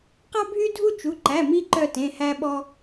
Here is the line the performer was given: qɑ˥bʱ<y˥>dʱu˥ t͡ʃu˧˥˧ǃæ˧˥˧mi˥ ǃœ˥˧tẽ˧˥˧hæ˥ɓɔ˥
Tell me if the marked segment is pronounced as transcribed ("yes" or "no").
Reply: yes